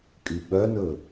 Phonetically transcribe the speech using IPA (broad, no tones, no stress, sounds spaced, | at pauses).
kʼ y ɓ œ n ɵ